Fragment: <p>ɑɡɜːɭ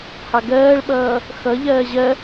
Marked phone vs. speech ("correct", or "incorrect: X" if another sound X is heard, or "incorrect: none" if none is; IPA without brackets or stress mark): incorrect: h